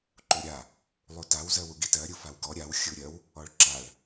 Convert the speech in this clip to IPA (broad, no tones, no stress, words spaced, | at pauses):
ǃuɾʲa | lˠutaw zɜwuɡitɜ ɾʲufawɡɔ ɾʲaw xʲuɾʲɜw | ɔɭǁaɭ